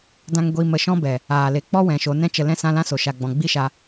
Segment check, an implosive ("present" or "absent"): absent